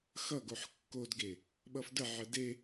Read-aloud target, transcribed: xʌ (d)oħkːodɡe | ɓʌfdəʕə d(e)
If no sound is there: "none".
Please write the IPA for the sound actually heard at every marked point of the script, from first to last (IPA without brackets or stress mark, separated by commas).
ɡ, e